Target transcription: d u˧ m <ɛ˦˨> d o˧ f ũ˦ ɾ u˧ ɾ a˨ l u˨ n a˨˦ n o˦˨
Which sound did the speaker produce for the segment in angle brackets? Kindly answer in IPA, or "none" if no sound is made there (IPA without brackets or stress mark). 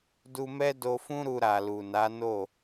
ɛ˦